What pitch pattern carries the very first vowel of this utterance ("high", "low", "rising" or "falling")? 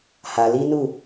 low